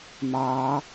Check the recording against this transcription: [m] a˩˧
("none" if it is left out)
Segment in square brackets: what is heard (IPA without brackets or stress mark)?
m